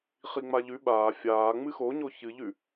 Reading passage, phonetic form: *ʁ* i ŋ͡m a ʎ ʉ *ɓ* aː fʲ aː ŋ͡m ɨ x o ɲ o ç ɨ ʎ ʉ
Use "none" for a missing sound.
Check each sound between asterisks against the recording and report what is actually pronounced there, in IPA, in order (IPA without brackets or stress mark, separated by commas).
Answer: χ, ɓ